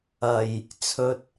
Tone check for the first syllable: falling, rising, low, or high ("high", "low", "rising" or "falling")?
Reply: low